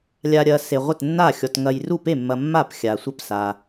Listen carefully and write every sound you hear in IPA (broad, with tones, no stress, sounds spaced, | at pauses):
lʲ a˨ ɾʲ ɐ˨ s e˨ ʁʷ ɘ˥˩ t nː a˥˩ xʲ ɔ˨ t ŋ ɐ˨ j r u˥˩ p e˥˩ mː ɐ˨ mː a˥˩ p xʲ a˨ sʷ ɘ˥˩ p s a˨